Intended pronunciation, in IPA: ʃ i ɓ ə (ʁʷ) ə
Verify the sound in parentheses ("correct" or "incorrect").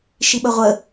correct